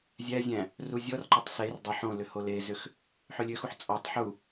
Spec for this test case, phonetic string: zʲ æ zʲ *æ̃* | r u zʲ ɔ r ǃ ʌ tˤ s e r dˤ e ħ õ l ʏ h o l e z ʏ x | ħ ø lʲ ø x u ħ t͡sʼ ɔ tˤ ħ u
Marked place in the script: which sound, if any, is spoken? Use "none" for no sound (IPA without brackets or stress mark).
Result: æ̃